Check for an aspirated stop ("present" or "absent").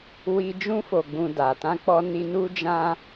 absent